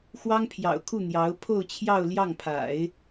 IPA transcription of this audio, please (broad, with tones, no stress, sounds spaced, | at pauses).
x w ɑ˥ ŋ pʰ j ɑ̰˨˩ ʊ̯ kʰ u˥˩ n̪ j ɑ˧˥ ʊ̯ pʰ o˥˧ ʊ̯ t͡ɕʰ j ɑ˥˧ ʊ̯ l j ɑ˥˩ ŋ pʰ a̰˨˩˦ ɪ̯